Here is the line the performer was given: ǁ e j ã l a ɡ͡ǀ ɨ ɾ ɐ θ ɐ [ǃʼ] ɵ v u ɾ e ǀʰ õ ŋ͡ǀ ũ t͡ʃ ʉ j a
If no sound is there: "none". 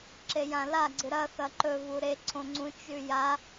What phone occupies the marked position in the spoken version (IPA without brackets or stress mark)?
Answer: ǃ